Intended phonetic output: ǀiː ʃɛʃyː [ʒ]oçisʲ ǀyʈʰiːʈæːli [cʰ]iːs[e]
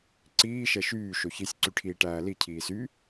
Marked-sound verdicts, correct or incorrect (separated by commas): incorrect, correct, incorrect